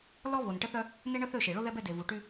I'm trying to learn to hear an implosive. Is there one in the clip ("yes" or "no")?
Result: no